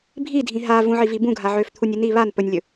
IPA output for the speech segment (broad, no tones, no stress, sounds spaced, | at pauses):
bʱ i dʱ ĩ ɦ a v ũ ʕ i v i b ũ ɡʱ a ʕ ø f t̪ʰ u nʲ i n i β a n p ɵ nʲ lʲ ɵ